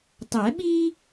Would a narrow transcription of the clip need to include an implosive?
yes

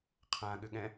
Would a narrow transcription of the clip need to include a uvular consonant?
yes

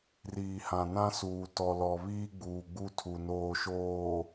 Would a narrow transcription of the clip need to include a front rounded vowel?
no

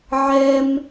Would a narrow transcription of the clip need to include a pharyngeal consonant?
yes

